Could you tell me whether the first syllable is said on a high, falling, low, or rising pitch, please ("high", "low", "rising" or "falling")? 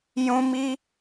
high